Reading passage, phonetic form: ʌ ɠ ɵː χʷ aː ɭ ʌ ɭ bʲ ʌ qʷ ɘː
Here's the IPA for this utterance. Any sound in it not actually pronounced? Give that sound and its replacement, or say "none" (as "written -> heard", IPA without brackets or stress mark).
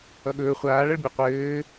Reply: none